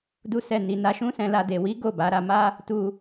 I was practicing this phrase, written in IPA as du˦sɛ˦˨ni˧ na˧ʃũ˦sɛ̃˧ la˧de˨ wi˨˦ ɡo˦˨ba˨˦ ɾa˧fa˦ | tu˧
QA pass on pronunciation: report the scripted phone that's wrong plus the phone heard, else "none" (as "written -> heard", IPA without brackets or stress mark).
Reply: f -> m